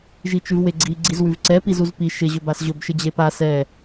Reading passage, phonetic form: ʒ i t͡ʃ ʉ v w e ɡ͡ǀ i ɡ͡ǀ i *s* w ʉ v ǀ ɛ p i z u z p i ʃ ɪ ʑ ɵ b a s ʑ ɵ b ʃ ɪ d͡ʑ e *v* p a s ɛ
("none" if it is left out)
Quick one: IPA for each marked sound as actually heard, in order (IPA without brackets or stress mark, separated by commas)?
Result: z, none